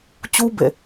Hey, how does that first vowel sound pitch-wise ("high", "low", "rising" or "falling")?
high